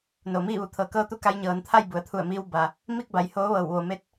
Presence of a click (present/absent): absent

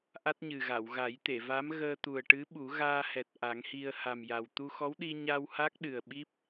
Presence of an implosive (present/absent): present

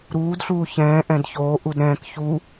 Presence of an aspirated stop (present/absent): absent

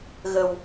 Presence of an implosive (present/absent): absent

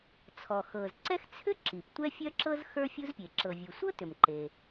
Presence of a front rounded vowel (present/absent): present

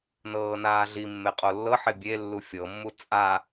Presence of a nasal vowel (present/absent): absent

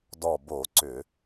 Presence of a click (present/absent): present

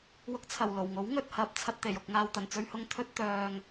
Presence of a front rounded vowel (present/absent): present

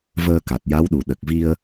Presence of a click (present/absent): absent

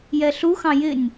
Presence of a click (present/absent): absent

